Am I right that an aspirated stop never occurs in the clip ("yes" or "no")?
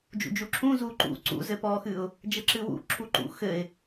no